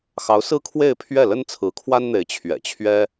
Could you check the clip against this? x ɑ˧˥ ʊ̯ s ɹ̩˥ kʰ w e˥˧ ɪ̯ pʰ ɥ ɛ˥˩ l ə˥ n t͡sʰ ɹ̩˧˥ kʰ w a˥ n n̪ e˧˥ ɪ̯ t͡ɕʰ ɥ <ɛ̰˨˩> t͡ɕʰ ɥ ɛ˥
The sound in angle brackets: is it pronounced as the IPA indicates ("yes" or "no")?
yes